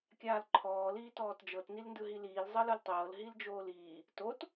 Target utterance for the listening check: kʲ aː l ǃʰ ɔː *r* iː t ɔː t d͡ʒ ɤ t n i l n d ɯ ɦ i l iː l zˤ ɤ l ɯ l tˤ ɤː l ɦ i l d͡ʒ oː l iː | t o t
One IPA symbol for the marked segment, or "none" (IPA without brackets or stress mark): l